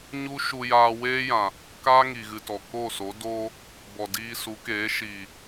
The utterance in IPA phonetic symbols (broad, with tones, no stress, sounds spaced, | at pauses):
ɲ u˦ ʃ u˧ j aː˧ w eː˦ j ã˨ | k aː˦ ŋ i˨ ɣ ɨ˨ t ɔ˨ k o˦˨ s o˨˦ d oː˦ | b ɔ˨ d iː˧ s u˨˦ k eː˨˦ ʃ iː˨